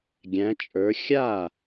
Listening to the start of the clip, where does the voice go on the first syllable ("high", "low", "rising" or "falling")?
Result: rising